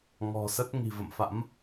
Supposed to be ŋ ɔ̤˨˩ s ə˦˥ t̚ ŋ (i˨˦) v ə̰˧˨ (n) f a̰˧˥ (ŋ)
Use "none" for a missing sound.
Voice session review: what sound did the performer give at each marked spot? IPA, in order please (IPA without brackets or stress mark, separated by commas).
i̤˨˩, m, m